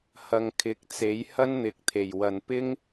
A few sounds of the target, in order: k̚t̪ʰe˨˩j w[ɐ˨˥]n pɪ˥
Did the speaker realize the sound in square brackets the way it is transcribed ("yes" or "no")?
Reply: no